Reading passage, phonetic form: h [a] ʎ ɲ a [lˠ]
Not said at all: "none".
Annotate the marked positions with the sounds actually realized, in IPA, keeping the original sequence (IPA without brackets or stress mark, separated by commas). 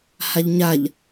a, ʎ